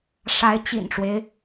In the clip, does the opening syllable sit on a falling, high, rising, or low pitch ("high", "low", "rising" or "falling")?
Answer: rising